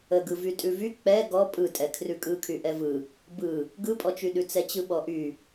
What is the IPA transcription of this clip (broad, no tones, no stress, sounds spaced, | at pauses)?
ə ɡ ɯ v y tʼ ʉ v y k͡p ɛ ɡ ɔ pʼ ɯ tʼ ɛ kʰ r ʉ kʼ ɯ kʰ y ʔ ɛ v ɯ | b ɯ | ɡ ɯ pʼ ɔ t͡ʃ y ɗ ʉ t͡s ɛ t͡ɕ ɯ ɓ ɔ ʔ y